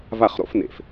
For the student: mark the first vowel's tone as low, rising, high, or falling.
falling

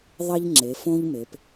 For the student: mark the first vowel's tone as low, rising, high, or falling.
high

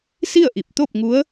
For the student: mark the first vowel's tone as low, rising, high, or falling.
falling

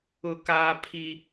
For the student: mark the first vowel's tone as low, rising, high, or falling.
high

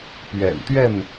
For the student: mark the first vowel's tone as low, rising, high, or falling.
low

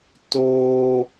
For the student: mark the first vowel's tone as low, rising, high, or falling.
high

